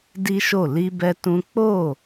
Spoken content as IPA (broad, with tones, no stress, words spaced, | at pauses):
di˦ʃo˦˨ li˧bɛ˧ tũ˦ k͡po˦˨